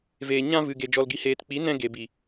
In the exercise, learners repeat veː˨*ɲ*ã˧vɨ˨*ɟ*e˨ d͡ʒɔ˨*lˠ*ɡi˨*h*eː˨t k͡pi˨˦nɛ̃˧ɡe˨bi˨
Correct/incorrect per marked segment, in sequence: correct, incorrect, incorrect, correct

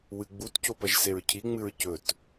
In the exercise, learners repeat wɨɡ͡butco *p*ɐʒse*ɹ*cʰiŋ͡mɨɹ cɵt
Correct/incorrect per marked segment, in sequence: correct, correct

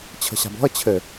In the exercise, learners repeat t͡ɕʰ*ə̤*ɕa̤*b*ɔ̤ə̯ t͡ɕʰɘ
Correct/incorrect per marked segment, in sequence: correct, correct

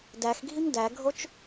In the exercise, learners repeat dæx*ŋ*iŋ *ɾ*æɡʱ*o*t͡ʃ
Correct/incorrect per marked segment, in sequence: incorrect, incorrect, correct

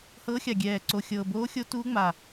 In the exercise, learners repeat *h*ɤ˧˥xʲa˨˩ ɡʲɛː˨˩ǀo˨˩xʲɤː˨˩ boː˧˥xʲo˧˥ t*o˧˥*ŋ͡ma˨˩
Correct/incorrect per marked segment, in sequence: correct, incorrect

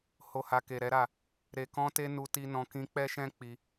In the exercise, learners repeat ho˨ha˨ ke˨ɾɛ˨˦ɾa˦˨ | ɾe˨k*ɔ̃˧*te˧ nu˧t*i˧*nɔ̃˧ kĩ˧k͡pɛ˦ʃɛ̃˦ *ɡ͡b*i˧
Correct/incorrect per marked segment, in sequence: correct, correct, incorrect

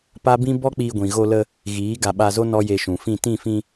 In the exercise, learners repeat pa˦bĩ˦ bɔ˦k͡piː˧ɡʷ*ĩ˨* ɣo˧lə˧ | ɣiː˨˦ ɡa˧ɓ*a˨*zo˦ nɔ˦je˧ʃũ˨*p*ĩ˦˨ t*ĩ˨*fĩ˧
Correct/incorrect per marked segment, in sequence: correct, incorrect, incorrect, incorrect

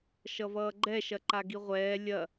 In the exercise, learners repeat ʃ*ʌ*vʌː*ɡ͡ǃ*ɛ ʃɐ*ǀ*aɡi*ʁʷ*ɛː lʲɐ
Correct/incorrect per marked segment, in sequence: correct, correct, incorrect, correct

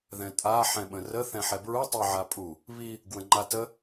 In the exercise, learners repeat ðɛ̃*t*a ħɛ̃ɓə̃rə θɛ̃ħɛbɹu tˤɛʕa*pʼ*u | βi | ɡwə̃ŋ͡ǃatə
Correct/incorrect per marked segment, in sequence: incorrect, correct

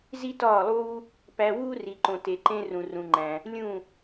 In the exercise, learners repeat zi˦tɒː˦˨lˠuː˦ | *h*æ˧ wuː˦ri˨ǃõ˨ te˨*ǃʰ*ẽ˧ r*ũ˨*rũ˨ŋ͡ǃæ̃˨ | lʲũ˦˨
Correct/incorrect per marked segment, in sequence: incorrect, incorrect, correct

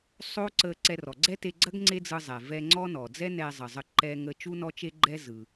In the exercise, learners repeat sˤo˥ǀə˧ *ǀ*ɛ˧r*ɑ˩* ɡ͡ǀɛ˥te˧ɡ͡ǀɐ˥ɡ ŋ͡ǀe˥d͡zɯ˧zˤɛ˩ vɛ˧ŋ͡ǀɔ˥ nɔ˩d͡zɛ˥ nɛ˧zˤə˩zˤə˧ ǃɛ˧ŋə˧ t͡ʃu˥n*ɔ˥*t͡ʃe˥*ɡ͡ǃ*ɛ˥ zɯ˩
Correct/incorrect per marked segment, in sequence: correct, incorrect, correct, correct

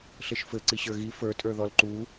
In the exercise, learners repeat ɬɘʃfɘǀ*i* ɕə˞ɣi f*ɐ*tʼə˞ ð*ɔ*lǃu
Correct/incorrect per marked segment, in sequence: correct, incorrect, correct

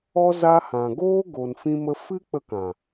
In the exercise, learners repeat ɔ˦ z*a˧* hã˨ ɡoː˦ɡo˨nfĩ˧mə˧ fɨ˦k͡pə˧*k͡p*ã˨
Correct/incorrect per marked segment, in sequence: correct, incorrect

